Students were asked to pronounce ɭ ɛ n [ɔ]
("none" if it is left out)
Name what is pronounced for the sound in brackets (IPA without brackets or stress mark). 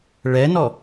ɔ